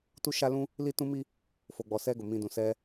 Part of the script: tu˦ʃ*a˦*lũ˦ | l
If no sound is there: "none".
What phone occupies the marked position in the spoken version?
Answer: a˦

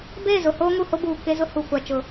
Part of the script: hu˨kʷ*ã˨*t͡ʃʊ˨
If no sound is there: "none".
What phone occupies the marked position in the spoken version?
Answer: a˨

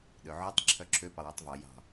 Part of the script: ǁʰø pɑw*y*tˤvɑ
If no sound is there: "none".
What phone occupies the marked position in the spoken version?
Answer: y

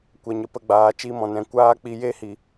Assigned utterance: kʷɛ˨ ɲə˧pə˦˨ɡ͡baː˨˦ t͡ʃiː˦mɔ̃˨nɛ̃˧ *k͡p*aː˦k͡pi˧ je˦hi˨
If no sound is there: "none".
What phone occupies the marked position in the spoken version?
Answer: kʷ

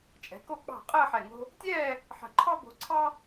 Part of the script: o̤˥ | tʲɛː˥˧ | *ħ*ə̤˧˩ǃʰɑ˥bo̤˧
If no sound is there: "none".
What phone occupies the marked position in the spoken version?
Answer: ħ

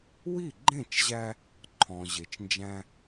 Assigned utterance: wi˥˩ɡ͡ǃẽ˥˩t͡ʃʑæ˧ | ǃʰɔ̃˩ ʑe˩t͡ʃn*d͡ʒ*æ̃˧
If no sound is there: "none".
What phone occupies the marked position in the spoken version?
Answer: d͡ʒ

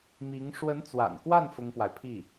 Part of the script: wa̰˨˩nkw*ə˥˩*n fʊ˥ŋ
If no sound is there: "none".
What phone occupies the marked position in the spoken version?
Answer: a˥˩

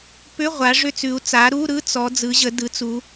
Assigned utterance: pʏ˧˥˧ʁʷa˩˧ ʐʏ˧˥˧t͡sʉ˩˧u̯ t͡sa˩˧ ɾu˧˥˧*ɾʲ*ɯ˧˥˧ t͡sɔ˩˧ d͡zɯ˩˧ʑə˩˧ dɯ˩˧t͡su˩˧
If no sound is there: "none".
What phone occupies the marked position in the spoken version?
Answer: ɾ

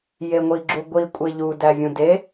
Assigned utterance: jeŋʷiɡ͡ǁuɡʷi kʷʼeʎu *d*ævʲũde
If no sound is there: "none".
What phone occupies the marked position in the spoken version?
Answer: d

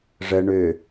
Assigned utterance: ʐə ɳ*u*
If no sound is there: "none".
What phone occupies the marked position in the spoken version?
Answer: ø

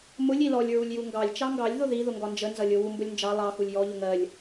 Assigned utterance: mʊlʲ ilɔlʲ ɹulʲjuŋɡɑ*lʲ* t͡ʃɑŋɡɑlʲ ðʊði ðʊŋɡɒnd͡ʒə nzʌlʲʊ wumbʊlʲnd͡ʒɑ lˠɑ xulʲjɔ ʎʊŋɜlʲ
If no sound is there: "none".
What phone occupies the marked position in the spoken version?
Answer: lʲ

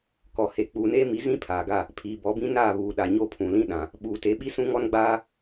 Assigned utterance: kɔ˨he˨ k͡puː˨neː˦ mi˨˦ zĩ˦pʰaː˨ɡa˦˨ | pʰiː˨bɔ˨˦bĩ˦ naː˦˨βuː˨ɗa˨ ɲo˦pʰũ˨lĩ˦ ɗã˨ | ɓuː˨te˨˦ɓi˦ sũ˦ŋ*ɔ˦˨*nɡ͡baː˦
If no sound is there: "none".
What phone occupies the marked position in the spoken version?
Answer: ɔ˦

